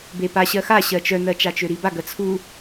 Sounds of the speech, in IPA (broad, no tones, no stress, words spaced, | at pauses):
bepa ɕɜxa ɕɜt͡ʃœnɜ t͡ʃat͡ʃøɾiba ɡɜt͡sʰu